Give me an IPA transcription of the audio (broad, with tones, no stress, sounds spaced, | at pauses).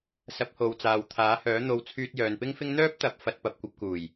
s ɐ˨˥ p̚ h o˨˧ w t͡s aː˨ w t̪ʰ aː˨˥ h œː˨˥ n̪ o˨ w t͡sʰ yː˧ t̚ j œː˨ n p ɪ˥ ŋ f ɪ˥ ŋ n̪ œː˥ p̚ t̪ ɐ˨˥ p̚ f ɐ˨˥ t̚ p ɐ˨ p̚ kʷ ɐ˧ p̚ k uː˨˩ j